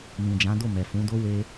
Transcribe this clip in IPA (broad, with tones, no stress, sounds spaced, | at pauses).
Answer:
m ĩ˨ d͡ʒ ã˨˦ d o˦˨ m ɛ˨ f ũ˨˦ d o˦ w e˦